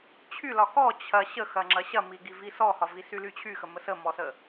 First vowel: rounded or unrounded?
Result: rounded